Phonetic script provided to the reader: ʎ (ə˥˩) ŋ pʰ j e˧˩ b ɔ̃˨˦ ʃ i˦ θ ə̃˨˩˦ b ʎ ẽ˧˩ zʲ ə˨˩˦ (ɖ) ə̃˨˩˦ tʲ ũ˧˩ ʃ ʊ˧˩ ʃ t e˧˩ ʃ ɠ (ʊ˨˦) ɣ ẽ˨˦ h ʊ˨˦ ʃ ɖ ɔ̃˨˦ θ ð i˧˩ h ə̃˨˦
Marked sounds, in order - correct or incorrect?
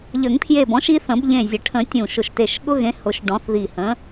incorrect: ə˨˩˦, incorrect: ʈʰ, incorrect: ʊ˦

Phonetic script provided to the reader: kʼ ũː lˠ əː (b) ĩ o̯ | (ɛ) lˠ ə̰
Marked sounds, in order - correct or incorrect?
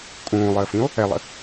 incorrect: f, correct

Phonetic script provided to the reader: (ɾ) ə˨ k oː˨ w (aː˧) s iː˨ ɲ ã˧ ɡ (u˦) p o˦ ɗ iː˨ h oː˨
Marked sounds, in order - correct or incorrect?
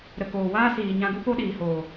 correct, incorrect: aː˦, correct

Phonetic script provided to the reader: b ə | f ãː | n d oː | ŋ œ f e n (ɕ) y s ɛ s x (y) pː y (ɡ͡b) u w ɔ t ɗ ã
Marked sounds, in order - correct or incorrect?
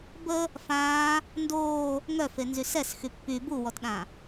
incorrect: z, correct, incorrect: b

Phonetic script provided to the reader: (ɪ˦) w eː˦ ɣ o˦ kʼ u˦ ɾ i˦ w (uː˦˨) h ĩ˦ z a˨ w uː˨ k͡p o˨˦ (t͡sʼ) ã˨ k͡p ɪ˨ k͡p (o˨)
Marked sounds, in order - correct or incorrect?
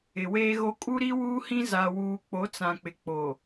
incorrect: ɪ˨, incorrect: uː˦, incorrect: t͡s, correct

